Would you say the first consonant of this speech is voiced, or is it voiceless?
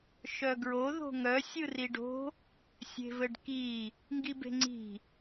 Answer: voiceless